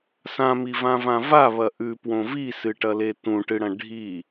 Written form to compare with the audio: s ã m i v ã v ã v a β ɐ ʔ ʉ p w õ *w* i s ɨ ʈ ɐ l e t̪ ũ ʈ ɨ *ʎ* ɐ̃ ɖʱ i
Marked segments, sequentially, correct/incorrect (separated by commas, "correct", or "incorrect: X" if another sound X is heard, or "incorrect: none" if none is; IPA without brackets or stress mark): incorrect: v, incorrect: ɽ